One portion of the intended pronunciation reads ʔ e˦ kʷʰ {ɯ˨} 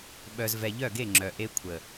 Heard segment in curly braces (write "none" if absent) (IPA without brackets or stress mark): ə˨